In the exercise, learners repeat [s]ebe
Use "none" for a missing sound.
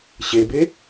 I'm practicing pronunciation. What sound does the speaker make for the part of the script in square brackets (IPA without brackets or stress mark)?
ɕ